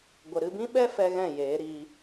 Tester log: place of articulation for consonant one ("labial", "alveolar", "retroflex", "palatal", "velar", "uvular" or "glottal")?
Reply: velar